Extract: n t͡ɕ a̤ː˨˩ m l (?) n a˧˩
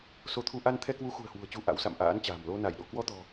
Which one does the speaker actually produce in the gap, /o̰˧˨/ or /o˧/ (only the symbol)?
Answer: o˧